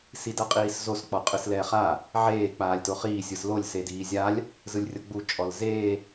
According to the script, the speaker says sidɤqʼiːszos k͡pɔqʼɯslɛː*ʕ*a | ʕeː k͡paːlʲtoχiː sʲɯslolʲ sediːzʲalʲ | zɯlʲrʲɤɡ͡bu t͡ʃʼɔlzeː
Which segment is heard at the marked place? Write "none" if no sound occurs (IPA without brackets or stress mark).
χ